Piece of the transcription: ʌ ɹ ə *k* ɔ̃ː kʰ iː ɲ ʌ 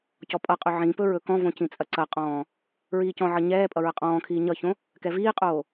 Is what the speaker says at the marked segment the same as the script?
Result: no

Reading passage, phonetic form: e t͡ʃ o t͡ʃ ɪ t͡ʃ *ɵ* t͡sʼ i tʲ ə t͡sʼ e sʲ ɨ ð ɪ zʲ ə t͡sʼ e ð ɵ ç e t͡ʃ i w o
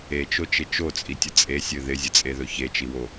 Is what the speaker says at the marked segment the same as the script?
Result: no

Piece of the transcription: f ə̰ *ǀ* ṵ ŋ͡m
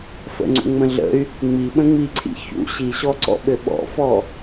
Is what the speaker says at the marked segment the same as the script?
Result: no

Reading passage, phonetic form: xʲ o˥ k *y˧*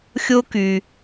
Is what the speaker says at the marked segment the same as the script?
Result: yes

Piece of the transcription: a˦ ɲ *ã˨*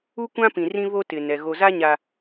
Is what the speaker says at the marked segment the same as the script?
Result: no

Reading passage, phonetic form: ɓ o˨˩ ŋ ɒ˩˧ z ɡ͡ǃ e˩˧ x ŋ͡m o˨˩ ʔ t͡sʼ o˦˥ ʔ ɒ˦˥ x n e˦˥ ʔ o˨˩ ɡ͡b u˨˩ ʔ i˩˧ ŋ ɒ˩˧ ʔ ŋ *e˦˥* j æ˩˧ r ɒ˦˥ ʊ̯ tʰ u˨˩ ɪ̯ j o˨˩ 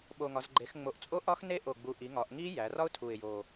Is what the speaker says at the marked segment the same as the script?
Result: no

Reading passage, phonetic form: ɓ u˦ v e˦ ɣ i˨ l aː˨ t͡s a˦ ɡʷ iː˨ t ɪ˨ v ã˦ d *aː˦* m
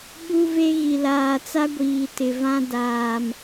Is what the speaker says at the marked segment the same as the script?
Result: no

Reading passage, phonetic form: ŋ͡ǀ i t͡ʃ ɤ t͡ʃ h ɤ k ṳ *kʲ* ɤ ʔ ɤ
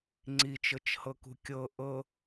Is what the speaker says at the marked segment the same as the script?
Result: yes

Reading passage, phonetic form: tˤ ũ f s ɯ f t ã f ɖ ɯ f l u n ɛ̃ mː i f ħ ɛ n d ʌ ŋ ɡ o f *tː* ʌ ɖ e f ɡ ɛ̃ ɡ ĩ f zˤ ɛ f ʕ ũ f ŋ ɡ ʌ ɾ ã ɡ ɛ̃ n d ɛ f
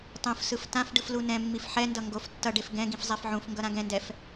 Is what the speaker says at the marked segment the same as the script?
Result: yes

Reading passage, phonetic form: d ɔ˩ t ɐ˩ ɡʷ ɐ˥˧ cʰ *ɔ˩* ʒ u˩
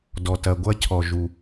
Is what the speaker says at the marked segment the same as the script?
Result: yes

